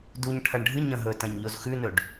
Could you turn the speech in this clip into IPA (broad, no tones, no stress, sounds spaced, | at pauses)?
d u ɲ ʈʰ ɐ ɳ ɖʱ ɨ ɲ ɐ̃ ɦ ɵ t ɐ̃ ɲ ʎ o z x ʉ n ɵ ɖ